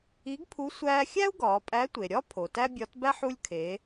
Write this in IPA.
i˧˥ɡpʰu˧˥ sʷæː˧xʲæ˥u̯ ɡɒː˩˧pʼæ˧˥tʷe˩ ɾʲɒ˥ pʰo˩tæ˥bʲɒ˧˥tbæ˥ħ u˧lʲkʰe˩˧

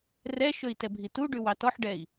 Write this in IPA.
rɛʃɵi̯ tɛbʱituɖʉ wɑtɔħɖɛi̯

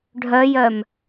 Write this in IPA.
ɖʱœjœm

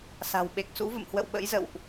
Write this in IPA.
sa̤˨˩w ɓe˨˩k̚sṵ˧˥ və̰˧˨mhwə̰˧˨w ɓə̰˧˥jzə̰˧˨wʔ

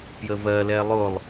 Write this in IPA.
pjəvɜlɛ lˠʊlˠ

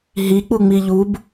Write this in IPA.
ɦik͡pu ŋ͡miʎub

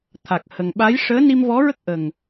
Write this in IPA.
t̪ʰa˨˩k̚hə˨˩ŋɓa˧˥j ʂəː˧˥ni˧mvɔ˧˥ɹə˦˥k̚ ʔə˨˩ŋ

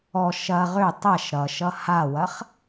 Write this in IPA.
ɔ ʃɐʁ ø tˤɐʃ ɾʌʃʌ hawɐχ

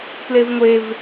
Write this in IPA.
plevŋʷev

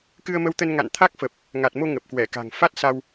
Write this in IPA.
kɨ˧ə̯mə˧wt̪ə˧n ŋa̰˧˨nt̪ʰa˦˥k̚fə˨˩p̚ | ŋa˨˩t̚mo˧ ŋə˨˩p̚kwɛ˧˩ka̤˨˩ŋ fa˦˥t̚sa˧w

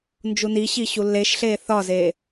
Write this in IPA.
nd͡ʒuniɕi ɕulːeʃɬeː θɒze

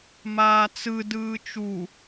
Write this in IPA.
maːt͡sɯ dɯːt͡ʃu

